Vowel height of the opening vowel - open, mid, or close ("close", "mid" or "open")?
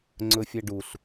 mid